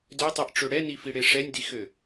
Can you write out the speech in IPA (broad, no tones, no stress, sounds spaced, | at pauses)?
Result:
d ø tˤ i ʔ ʈ͡ʂ ø ɽ ɛ n i f i ɽ e ʂ ɛ nʲ d i x ø